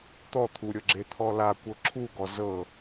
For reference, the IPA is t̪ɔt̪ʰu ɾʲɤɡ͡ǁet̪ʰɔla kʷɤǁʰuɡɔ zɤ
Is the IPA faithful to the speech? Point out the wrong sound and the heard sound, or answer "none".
none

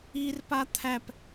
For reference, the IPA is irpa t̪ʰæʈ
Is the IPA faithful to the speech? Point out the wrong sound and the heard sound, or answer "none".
ʈ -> p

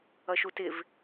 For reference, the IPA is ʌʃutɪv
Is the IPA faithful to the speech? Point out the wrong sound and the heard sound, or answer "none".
none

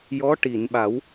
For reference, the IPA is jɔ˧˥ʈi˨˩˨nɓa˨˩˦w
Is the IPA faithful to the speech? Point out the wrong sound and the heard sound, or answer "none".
none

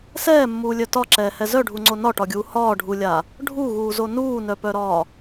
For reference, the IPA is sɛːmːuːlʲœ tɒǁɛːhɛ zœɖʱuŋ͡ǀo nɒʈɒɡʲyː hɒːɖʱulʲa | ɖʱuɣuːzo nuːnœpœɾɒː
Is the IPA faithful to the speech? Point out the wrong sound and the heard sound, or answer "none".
yː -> uː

